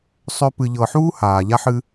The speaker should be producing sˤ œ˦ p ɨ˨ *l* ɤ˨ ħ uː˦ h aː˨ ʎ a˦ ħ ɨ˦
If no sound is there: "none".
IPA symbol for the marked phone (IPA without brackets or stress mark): ʎ